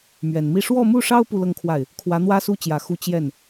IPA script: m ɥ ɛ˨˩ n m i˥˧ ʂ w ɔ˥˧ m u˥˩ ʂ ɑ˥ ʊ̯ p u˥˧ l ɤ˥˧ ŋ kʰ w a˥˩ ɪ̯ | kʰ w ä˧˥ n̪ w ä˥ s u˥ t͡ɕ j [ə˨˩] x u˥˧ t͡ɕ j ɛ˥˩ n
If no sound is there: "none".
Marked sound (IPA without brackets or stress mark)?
ä˨˩